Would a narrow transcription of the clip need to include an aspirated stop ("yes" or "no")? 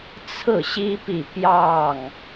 yes